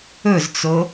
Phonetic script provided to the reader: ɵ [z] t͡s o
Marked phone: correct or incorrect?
correct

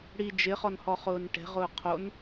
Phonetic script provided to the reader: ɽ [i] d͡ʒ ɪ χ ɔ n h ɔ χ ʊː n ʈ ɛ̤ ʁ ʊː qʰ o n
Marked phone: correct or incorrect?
correct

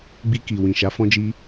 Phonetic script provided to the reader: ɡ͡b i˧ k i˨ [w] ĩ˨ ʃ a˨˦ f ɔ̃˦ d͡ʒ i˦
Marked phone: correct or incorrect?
correct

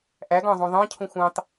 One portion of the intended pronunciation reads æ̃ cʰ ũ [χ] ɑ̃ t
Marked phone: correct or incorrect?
incorrect: xʷ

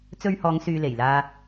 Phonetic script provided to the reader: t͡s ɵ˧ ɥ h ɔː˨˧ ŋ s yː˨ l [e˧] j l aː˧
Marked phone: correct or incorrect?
incorrect: e˨˩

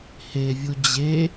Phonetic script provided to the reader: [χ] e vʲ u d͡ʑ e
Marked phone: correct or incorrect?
incorrect: h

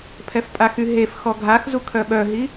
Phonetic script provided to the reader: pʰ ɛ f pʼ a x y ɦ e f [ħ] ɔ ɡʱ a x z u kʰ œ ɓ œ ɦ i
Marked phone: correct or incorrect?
incorrect: x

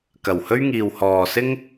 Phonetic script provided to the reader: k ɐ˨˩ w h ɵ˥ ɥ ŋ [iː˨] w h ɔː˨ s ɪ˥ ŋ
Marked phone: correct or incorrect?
correct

